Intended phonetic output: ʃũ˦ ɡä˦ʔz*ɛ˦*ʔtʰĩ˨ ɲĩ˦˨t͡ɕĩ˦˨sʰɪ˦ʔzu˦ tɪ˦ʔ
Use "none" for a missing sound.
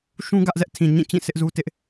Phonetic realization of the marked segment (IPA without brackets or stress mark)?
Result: ɛ˦